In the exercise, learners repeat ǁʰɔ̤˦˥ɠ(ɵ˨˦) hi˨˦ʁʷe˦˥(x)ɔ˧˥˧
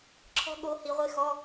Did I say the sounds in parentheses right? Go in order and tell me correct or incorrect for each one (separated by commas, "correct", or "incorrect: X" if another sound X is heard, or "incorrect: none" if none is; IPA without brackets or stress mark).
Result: incorrect: o˨˦, correct